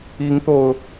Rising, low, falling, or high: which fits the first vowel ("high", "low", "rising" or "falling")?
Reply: rising